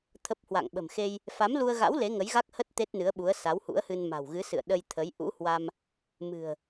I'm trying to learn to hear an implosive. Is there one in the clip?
yes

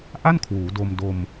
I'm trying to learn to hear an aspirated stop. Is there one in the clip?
yes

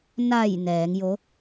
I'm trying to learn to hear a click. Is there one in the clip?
no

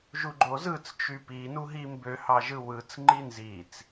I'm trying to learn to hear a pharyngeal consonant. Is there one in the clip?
no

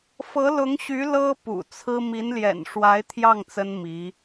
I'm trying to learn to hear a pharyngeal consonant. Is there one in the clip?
no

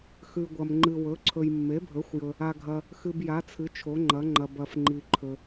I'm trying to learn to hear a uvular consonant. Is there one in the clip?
no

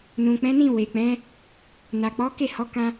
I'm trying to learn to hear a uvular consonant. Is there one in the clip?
no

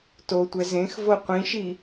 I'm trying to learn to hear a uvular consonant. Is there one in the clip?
yes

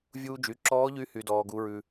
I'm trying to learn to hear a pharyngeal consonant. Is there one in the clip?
no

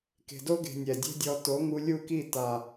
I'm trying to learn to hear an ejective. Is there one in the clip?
no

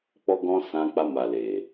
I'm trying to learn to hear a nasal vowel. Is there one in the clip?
yes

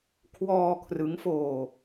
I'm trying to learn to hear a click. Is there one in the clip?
no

